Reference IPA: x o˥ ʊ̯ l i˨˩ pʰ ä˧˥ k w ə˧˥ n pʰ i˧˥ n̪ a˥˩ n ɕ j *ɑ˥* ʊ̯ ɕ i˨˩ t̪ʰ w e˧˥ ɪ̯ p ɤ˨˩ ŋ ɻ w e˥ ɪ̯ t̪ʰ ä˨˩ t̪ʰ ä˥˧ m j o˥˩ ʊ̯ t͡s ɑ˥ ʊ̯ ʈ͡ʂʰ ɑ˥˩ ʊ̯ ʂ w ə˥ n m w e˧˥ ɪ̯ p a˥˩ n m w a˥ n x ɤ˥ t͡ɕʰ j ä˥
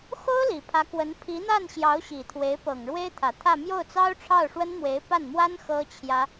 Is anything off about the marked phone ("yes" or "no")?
yes